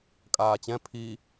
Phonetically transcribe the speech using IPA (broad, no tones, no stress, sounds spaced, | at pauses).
kʼ aː t͡ɕ ɛ̃ pʰ i